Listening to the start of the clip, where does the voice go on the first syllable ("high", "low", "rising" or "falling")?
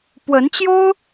rising